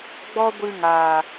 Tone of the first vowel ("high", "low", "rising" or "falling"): high